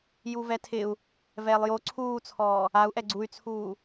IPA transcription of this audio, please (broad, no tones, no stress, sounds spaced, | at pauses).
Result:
j u v ɛ tʰ ɪ u̯ | v ɛː lˠ j o ǀʰ uː t͡sʰ ɔː | a u̯ ʔ ɛ ɡ͡ǀ u y̯ t͡sʰ uː